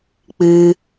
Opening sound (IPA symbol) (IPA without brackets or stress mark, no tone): k͡p